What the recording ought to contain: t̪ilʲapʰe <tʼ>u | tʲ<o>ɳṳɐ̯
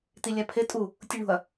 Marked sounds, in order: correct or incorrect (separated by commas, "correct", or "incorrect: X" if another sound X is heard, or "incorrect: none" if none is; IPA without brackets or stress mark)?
correct, incorrect: u